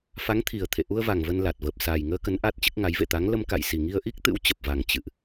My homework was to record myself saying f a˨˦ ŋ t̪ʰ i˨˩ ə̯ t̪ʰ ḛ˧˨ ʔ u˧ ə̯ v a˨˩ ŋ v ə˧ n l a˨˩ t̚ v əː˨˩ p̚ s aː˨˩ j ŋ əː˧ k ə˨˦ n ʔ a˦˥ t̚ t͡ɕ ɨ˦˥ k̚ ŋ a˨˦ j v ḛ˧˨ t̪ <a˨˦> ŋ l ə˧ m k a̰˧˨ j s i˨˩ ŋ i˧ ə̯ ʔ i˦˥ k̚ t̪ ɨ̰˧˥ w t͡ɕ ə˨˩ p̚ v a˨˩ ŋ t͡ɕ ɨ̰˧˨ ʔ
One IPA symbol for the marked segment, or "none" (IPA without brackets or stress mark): a˨˦